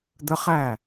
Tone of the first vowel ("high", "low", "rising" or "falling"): high